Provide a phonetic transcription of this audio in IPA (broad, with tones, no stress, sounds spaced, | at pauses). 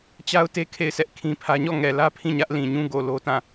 t͡ɕ a˦ ʊ̯ t e˦ kʰ e˦˨ ɪ̯ s ɛ˦ ʔ kʰ ĩ˦ pʰ ä˦ ɲ ɔ˦˨ ŋ ɛ˨ l ä˦ pʰ ĩ˦˨ ɲ ä˦ ʔ l ĩ˨ ɲ ũ˦ ɡ o˨ l o˦ t ã˦˨